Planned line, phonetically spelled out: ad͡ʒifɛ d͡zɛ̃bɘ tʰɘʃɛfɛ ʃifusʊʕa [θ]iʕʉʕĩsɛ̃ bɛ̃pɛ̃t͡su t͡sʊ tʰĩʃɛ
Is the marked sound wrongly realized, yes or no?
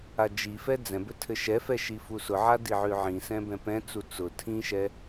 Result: yes